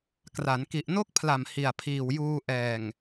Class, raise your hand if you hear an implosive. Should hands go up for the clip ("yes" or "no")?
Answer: no